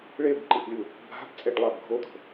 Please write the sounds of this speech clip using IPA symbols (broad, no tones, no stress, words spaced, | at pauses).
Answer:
ɭebǃiʔlʲu | bʱa̤bt͡sʼeɖlˠab ɡʱod̪o̤